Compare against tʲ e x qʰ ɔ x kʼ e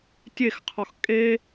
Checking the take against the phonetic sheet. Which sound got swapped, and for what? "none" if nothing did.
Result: none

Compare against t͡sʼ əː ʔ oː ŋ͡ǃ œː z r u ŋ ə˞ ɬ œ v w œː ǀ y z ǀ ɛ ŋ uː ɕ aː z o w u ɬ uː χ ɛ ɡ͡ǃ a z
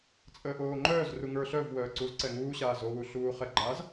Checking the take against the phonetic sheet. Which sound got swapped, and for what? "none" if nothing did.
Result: y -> u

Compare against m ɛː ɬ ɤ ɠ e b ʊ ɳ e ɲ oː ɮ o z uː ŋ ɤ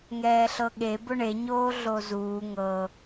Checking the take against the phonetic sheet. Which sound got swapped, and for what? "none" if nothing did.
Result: m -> ŋ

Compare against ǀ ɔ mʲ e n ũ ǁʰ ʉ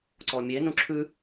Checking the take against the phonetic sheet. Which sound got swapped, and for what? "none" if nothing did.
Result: none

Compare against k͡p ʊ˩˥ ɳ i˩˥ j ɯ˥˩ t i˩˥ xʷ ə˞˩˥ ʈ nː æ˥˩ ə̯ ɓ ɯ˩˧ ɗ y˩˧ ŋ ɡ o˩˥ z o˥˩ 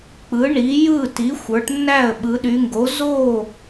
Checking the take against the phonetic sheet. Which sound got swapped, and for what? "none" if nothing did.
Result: ʊ˩˥ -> ɯ˩˥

